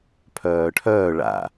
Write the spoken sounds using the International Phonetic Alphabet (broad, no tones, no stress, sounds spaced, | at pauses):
pʰ œː ʈʰ œː ɭ a̰